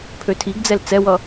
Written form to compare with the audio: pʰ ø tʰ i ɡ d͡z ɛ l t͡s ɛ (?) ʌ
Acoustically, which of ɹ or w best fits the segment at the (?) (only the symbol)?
w